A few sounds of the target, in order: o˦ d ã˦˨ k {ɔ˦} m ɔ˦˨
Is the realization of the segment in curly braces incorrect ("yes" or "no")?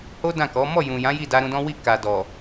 yes